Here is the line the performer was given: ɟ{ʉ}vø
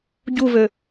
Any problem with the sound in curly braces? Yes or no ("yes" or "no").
yes